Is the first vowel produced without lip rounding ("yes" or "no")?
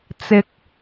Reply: yes